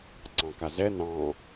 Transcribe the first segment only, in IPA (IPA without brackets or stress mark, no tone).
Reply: ǀ